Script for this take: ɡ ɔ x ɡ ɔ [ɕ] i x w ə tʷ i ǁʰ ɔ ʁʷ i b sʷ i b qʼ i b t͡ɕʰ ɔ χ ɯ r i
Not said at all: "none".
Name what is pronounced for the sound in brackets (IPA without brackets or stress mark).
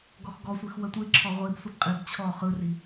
sʷ